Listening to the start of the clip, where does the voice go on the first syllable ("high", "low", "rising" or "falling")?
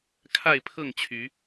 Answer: falling